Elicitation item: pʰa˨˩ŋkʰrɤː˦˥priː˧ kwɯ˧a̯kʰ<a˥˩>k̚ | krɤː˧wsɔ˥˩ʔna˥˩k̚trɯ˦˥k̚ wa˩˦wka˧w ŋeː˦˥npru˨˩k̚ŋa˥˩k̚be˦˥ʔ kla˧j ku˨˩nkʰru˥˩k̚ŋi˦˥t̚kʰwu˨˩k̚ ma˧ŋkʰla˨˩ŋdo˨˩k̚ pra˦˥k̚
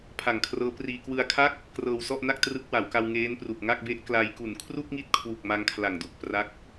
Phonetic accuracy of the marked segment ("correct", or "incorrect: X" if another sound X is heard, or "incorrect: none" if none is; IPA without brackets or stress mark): correct